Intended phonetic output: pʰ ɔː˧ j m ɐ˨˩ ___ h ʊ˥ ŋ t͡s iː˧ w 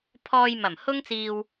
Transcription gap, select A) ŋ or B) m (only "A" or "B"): B